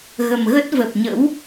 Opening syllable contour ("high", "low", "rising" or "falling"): low